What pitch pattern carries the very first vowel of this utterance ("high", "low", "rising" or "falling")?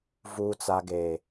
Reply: low